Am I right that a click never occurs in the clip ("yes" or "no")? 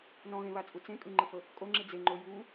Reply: no